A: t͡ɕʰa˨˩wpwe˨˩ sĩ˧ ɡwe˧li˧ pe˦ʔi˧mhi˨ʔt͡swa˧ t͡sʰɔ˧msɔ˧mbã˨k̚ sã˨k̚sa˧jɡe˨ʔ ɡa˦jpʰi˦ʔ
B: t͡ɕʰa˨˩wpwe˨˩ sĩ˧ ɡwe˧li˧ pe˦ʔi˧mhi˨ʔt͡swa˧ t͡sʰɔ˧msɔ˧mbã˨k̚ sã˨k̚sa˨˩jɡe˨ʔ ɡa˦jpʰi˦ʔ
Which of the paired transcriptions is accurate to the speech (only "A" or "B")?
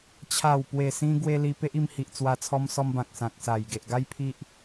B